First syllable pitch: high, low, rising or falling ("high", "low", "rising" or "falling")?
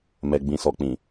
low